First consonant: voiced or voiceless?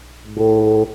voiced